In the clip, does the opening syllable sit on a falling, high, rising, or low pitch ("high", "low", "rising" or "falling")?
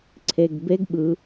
low